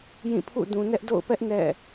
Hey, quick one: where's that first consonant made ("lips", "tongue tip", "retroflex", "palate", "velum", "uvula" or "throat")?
palate